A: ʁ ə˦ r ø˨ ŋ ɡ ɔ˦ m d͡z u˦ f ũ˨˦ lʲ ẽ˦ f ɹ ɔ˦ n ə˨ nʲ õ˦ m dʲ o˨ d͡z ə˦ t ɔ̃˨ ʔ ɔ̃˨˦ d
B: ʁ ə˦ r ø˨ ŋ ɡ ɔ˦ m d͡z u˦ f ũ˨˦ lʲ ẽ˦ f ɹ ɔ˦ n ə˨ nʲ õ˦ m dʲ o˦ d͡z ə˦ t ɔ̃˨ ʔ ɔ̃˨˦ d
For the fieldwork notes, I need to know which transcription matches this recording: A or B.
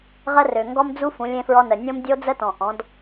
B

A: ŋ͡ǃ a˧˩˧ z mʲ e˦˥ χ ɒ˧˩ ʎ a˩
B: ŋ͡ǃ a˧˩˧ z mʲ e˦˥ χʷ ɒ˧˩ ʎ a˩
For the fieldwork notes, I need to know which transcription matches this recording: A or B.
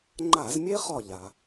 A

